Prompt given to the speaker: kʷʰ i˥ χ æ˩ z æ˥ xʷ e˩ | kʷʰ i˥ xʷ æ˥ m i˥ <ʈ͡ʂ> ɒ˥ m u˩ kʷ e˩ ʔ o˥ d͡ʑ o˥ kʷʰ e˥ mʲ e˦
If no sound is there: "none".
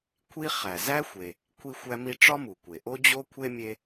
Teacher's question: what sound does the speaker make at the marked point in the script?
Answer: ʈ͡ʂ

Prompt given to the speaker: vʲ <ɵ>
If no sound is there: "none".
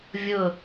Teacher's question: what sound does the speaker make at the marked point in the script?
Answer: ɵ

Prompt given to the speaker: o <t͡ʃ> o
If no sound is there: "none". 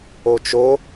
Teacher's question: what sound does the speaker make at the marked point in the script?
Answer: t͡ʃ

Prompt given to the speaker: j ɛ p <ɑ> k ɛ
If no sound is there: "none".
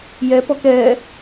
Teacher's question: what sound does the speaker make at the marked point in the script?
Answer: ɔ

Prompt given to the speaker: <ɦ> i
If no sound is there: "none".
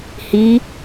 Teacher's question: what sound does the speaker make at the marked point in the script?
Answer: h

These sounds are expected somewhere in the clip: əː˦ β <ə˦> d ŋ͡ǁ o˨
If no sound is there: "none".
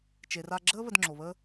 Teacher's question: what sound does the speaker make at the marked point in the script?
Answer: ə˧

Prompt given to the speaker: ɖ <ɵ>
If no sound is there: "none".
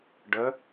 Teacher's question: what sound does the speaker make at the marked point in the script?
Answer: ə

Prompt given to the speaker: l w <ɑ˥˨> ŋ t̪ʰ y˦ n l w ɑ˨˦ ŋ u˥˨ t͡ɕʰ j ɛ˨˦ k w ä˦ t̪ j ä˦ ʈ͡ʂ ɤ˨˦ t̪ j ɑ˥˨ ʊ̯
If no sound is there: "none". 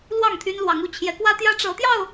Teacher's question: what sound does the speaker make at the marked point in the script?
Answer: ɑ˥˨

